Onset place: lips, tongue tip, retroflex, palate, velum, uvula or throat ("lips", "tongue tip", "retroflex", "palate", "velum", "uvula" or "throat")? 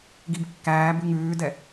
velum